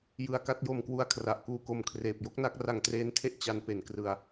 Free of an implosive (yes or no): yes